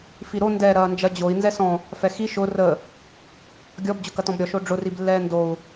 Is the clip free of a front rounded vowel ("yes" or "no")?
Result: yes